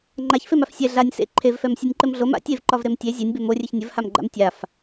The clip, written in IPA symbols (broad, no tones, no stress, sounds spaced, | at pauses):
ŋ͡ǃ a ç f e m a f sʲ ɛ ɮ a nʲ s ḛ ǃʰ e v f ɛ m sʲ ɒ nʲ ǃ ɘ m ɮ o m a̰ tʲ e v ǃ ɒ v ɾ e m tʲ e zʲ e nʲ b e m o rʲ e ç nʲ ɘ v h a m ɡ͡ǃ a̰ m tʲ a f